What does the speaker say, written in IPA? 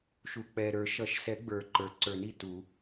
ʃu˩k͡pɛ˩ɾə˞˨˩˦ʃʌ˨˩˦ʃ sɛ˨˩˦ ɡ͡bə˞˩ǃə˞˩ ǀə˞˨˩˦ni˩ tu˨˩˦

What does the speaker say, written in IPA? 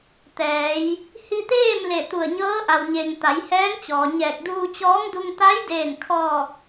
t̪ɛː˩˧j | hi˧t̪eː˥˨m le˧˩t̪u˧˩ə̯ɲɤː˧˥ʔa˩w ɲe˩ŋ t̪a˩˧jhɛː˧˥ŋt͡ɕɔː˩ ɲɛː˧˩k̚duː˧t͡ɕɔː˧˥ŋdu˧ŋ t̪a˧˥jdeː˧˩nkʰɔː˧˩k̚

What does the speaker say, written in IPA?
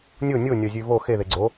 nʲo nʲonʲɒzʲʉ vo xeðe ɡ͡ǀo

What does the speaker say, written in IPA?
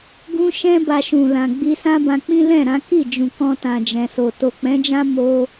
ɡũ˦ʃɛ̃˦ ba˧ʃũ˨lã˨ ɡ͡bi˧sã˦bã˧ k͡pĩ˦lɛ̃˦˨ɾã˨˦ ki˦˨ d͡ʒũ˨kɔ̃˧tã˨ d͡ʒɛ̃˨so˨ to˨k͡pɛ̃˨˦d͡ʒã˦ mo˧

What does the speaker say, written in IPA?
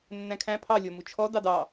nːæ̃kʰæ̃ pʰɑ lʲɔmut͡ʃʰɔ dɑdɑ

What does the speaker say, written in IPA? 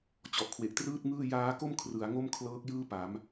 t͡ɕɔ˨˩ʔkʰwe˨˩ʔtrɯː˥˩t̚ŋɯː˥˩ jaː˦˥ko˥˩m kʰrɯ˩˦a̯ŋo˥˩mkʰlɤː˦˥k̚ jɯː˥˩ pa˩˦m

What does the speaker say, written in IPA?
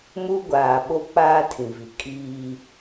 muː˦ɡʷaː˨ɓo˦ k͡paː˦ tʰĩ˨vi˨ kʼiː˦

